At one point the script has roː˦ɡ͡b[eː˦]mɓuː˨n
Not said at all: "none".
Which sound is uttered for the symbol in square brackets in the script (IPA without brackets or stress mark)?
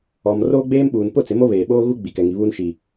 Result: eː˦